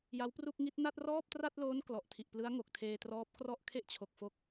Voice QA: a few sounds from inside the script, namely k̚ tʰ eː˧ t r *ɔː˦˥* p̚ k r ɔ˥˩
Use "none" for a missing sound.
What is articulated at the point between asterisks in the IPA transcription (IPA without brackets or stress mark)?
ɔː˦˥